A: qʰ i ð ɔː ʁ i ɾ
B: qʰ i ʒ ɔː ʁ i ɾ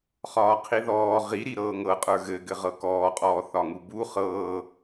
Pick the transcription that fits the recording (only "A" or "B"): A